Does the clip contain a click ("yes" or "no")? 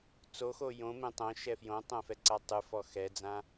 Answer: yes